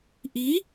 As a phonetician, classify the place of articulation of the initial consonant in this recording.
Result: glottal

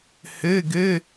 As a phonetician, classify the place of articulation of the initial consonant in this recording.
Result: glottal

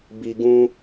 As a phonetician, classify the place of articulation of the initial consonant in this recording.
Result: labial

